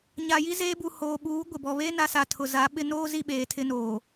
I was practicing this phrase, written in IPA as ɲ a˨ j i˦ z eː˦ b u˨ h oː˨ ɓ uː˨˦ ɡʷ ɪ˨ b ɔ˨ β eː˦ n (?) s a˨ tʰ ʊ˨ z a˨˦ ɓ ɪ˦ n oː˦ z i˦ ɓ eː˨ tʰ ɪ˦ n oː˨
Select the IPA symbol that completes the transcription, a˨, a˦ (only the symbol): a˨